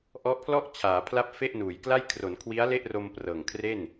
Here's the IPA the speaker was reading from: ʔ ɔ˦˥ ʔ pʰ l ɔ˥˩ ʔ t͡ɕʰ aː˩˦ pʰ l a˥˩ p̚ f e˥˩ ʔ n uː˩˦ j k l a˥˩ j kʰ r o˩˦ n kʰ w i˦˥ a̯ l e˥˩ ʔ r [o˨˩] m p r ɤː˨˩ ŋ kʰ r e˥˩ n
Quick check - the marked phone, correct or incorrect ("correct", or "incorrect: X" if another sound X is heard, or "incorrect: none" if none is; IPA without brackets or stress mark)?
incorrect: o˧